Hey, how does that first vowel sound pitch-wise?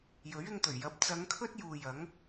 rising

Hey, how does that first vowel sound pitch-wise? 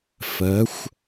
rising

